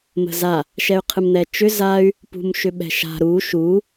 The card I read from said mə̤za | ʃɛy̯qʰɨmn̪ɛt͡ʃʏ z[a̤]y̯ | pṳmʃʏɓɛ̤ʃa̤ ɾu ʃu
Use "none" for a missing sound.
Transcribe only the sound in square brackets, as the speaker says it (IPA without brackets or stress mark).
a